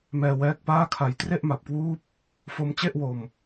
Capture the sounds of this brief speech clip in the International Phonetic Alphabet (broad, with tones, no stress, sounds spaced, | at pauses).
m ɛː˧ w ɛː˦˥ k̚ p aː˥˩ kʰ a˧ j t r e˥˩ ʔ m a˨˩ p̚ k w uː˦˥ p̚ | f o˦˥ m t͡ɕ e˥˩ ʔ w o˧ m